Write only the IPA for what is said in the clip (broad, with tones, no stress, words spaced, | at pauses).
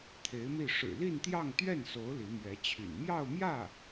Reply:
t̪ʰe˧˥ɪ̯mi˥˩ ʂɻ̩˨˩li˥˧nt̪jɑ˥˧ŋ t̪ɥɛ˥˩nso˧˥ʊ̯ li˧˥mɥɛ˧˥t͡ɕʰy̰˨˩n mjɑ˥˧ʊ̯mjä˥˩